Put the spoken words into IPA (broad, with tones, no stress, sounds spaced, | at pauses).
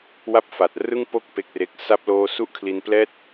w a˥˩ p̚ f a˨˩ t̚ r ɯ˥˩ ŋ p o˥˩ k̚ p e˥˩ k̚ r e˦˥ k̚ s a˦˥ p̚ l oː˥˩ s u˥˩ ʔ kʰ l i˧ n p l ɛː˥˩ t̚